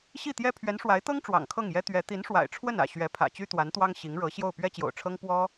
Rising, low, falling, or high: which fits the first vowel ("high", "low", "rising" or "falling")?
falling